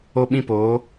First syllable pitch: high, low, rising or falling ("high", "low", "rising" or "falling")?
high